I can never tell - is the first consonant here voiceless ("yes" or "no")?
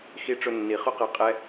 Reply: yes